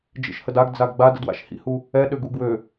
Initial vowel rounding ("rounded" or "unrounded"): unrounded